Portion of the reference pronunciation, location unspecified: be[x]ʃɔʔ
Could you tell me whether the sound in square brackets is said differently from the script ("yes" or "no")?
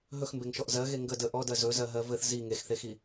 yes